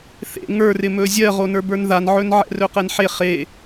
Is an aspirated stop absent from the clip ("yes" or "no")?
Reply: yes